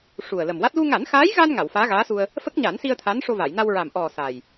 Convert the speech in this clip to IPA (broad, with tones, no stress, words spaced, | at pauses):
ʂu˨˩ə̯lə˨˩mwa˦˥t̚ lu˧ŋa˨˩˦nxaː˧˥jɣa˧n ŋa˨˩˨wfaː˧˥ɣaː˧˥su˧ə̯ | fə˦˥k̚ɲa˨˩˦nsi˧ə̯ t̪ʰa˧˥nʂo˧va˨˩˨j na˧wɹa˨˩m ʔɔ˨˩ sa˨˩j